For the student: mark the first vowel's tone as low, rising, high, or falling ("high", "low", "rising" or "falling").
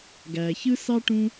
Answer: low